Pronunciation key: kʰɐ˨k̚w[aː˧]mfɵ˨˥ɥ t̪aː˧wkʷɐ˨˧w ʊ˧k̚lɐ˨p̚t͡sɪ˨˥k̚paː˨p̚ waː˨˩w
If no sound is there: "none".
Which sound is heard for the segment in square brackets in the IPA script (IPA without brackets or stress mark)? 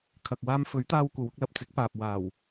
aː˧